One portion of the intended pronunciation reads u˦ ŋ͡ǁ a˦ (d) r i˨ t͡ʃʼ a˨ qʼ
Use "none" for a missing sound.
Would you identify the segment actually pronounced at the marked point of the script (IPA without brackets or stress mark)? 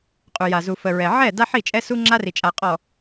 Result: none